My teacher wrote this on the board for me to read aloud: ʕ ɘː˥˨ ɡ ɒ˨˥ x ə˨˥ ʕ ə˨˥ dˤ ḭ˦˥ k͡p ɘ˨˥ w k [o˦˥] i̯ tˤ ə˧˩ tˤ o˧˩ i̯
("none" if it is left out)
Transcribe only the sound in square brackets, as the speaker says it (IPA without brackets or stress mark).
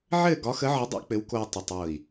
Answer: o˧